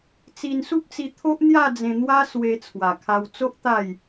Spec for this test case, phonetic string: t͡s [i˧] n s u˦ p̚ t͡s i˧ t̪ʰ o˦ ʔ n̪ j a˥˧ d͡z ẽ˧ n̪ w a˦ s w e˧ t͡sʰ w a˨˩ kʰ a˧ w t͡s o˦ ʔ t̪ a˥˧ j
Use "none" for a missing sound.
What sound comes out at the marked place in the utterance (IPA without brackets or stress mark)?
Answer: i˧